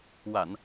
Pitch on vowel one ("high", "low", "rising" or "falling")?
low